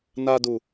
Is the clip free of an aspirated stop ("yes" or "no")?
yes